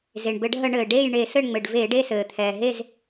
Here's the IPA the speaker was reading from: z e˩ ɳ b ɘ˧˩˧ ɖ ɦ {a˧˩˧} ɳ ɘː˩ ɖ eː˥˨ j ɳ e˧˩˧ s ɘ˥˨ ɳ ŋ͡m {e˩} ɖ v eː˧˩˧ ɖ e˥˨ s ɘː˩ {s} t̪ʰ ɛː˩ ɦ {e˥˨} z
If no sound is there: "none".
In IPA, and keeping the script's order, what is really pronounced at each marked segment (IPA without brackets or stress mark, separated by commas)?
ə˧˩˧, ɘ˩, none, e˥˨